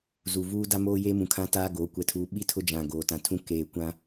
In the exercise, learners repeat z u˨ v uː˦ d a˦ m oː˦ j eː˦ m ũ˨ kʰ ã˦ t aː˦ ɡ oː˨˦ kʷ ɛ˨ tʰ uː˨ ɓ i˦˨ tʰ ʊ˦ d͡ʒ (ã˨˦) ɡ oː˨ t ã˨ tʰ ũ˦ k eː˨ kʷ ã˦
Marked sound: incorrect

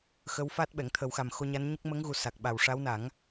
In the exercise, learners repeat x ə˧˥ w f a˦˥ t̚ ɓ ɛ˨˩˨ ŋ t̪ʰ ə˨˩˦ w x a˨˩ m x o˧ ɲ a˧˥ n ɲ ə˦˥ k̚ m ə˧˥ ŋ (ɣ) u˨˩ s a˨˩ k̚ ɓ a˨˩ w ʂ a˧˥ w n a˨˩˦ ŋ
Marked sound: correct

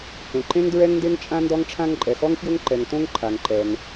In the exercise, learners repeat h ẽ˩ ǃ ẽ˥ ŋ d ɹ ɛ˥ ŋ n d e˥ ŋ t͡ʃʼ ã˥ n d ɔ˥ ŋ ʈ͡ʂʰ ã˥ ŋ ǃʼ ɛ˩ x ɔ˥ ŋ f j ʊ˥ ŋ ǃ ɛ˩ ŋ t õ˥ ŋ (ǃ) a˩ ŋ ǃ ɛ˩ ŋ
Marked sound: incorrect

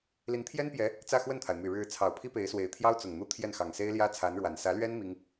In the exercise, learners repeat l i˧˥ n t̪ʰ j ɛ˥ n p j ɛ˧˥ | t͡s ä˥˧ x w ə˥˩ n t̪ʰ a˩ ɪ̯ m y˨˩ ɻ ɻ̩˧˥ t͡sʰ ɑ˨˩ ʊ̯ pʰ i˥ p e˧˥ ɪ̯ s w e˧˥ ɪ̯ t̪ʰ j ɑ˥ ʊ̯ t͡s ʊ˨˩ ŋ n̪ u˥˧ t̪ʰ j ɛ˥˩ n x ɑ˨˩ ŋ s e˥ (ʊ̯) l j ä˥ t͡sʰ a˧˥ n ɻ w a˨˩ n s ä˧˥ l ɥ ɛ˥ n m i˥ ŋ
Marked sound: incorrect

